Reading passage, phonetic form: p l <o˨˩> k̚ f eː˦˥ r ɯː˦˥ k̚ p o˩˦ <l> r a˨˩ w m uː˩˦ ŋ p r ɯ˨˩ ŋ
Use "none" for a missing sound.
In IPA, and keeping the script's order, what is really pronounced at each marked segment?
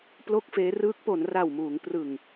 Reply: o˥˩, n

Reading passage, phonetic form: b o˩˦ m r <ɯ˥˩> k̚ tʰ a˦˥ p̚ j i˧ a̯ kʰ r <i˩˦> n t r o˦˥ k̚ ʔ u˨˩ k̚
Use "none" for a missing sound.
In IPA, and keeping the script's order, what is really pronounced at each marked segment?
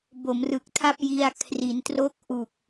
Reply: ɯ˨˩, i˩˦

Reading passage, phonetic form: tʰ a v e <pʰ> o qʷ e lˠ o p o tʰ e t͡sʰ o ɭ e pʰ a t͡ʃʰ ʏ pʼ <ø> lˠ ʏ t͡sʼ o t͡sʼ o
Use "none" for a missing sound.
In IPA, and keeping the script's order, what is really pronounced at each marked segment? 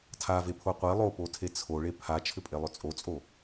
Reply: pʰ, e

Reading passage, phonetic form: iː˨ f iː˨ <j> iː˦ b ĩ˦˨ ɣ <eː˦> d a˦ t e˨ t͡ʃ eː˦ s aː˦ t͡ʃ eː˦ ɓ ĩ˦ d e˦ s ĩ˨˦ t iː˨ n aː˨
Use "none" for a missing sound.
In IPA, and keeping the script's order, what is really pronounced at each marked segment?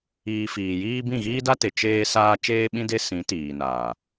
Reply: j, iː˦

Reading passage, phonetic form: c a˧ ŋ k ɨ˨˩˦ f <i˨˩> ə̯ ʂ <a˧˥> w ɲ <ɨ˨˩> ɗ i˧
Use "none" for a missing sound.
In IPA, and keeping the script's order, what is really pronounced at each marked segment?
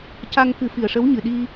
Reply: i˨˩, ə˧˥, ɨ˨˩

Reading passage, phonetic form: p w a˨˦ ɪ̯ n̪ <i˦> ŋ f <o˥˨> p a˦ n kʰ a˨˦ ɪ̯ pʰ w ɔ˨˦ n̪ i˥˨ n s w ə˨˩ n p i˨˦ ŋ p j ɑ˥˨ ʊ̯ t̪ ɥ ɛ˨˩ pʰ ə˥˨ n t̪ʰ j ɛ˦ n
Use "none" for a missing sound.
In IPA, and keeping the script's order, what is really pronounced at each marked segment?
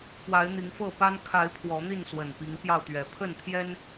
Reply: i˨˦, ɤ˥˨

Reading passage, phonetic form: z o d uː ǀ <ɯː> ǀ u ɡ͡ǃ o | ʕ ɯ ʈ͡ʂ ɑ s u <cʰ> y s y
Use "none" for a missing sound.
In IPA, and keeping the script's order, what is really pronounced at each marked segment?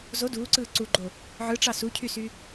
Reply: ɯː, cʰ

